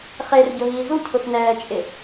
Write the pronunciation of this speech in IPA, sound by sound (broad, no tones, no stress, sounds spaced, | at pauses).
χ e r ɟ ʊ ɦ iː z u cʰ ʊ x n ɛː t͡ʃʼ ɪ